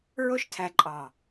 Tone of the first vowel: high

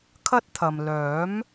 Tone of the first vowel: high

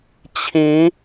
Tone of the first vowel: rising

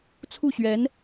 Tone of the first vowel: falling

